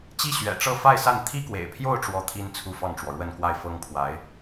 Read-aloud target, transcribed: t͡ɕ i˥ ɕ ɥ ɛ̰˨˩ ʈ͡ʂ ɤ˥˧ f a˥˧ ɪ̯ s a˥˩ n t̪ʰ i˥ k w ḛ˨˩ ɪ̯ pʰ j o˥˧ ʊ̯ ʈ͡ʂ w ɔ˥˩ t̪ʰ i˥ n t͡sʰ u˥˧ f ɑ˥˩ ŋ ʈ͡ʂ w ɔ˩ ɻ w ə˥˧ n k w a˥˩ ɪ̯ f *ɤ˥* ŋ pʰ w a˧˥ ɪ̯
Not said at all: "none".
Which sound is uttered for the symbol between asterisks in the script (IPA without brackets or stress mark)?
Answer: ɤ˥